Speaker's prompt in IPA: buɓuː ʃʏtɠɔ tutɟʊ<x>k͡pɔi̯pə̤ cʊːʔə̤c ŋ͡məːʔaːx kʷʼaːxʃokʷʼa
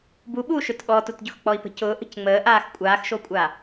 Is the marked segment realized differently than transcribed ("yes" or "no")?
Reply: no